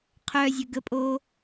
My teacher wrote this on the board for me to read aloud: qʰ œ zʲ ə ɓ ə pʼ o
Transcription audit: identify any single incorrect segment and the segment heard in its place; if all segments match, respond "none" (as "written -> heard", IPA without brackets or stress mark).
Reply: ɓ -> ɡ